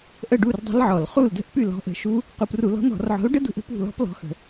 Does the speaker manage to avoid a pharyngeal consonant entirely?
no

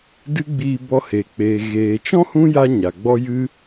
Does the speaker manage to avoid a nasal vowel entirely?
no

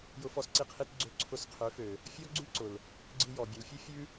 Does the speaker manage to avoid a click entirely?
no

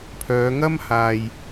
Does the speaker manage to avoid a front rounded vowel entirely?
no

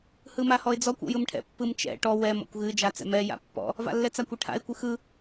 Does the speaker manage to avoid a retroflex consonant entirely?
no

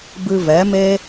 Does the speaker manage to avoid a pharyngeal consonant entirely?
yes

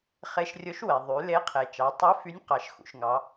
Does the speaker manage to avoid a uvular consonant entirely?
no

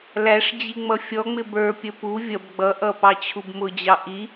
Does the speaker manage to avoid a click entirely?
yes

